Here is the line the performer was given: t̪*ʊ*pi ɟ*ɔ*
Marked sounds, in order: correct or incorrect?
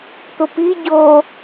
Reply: correct, incorrect: o

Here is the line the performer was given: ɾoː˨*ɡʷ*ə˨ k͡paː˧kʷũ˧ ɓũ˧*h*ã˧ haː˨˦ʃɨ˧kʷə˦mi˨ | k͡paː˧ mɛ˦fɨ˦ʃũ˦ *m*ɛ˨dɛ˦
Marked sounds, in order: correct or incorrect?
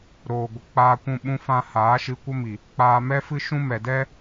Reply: correct, incorrect: f, correct

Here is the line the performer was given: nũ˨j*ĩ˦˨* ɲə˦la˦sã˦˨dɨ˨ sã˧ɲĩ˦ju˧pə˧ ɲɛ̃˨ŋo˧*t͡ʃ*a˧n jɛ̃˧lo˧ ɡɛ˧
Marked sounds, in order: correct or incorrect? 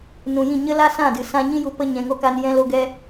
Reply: correct, incorrect: k

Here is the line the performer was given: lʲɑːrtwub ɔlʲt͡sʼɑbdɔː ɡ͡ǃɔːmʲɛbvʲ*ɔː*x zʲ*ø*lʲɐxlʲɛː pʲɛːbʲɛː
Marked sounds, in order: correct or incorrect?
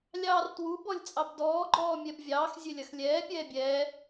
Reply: incorrect: ɑː, correct

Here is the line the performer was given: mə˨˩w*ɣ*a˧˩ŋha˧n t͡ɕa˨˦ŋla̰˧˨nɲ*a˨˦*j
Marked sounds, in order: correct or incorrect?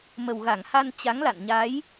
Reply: correct, correct

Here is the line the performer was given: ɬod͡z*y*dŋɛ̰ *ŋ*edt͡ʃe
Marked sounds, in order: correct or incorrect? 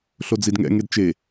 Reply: incorrect: i, correct

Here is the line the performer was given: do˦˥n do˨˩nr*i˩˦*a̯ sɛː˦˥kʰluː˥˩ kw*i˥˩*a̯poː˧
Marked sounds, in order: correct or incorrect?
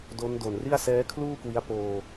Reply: incorrect: i˥˩, incorrect: i˦˥

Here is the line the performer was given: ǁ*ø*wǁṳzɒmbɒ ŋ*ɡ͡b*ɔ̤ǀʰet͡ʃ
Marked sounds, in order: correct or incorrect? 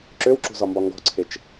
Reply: correct, incorrect: ɡ

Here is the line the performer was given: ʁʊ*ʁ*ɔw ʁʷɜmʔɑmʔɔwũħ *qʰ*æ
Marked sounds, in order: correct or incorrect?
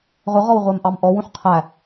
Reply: correct, correct

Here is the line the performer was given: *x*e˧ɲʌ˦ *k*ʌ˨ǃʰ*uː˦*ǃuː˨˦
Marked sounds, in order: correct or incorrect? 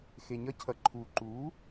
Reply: correct, incorrect: cʰ, incorrect: uː˨

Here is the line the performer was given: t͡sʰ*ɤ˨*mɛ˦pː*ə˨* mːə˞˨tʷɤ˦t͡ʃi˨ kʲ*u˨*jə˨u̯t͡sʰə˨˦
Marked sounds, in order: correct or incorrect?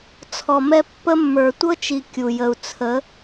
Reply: incorrect: ɔ˨, incorrect: ə˦, correct

